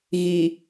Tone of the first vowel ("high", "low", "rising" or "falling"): low